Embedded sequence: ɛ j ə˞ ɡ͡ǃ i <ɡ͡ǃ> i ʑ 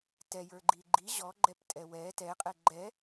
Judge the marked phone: correct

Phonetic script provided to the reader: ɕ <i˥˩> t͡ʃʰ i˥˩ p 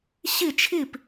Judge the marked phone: correct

